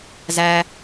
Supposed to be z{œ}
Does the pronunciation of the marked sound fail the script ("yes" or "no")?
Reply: yes